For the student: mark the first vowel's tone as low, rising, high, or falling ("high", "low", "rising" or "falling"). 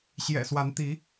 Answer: low